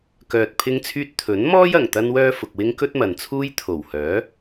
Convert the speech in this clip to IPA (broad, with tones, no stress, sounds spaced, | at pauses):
k œː˨ t̚ pʰ ɪ˧ ŋ t͡sʰ yː˧ t̚ t̪ʰ ɵ˨˥ n m ɔː˥ j ɐ˨˩ ŋ t̪ ɐ˥ n w œː˥ f ʊ˨ k̚ w ɪ˥ ŋ k ɵ˥ t̚ m ɐ˨ n t͡sʰ uː˥ j t̪ʰ o˨˩ w h œː˨˥